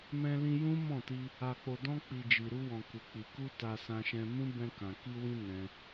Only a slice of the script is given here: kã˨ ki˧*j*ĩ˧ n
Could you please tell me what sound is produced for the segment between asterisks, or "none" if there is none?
w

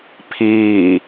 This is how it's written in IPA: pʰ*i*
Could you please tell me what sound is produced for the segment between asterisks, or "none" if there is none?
iː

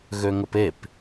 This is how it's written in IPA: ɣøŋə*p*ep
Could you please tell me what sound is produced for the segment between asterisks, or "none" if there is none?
p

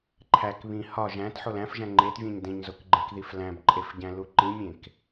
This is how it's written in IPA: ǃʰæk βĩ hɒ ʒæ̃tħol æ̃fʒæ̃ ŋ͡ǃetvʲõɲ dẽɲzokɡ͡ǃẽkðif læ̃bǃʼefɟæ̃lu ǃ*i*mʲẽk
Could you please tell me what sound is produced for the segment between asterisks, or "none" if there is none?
ĩ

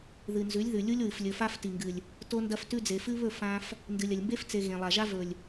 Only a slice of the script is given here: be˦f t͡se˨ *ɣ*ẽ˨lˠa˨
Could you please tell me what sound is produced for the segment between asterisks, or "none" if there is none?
ɣ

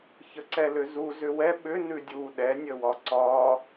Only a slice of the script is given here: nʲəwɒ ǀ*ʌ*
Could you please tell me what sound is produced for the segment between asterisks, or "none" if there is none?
ɒ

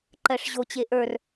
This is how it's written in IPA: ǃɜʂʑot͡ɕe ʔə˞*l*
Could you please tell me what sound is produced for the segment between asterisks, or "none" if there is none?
r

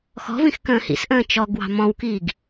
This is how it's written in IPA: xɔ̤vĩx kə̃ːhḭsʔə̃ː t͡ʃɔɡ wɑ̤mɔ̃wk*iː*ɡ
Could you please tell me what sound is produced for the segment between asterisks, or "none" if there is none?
iː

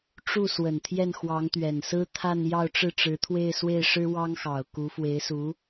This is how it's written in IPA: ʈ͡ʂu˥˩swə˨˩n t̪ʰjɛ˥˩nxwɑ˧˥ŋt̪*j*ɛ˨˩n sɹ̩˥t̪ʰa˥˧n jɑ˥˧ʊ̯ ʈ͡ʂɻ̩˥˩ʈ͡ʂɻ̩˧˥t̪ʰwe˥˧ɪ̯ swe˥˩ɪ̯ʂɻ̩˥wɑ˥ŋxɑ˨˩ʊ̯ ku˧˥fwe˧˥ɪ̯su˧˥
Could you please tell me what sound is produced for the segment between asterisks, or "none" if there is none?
ɥ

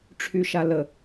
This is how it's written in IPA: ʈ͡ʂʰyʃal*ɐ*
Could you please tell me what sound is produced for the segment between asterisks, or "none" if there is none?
ə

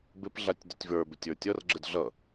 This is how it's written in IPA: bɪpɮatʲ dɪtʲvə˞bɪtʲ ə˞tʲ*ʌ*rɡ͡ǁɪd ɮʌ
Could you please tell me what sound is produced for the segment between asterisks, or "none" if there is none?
ʌ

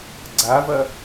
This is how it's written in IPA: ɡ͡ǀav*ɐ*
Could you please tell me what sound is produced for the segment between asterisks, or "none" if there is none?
ɐ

